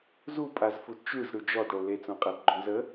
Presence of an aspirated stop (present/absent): absent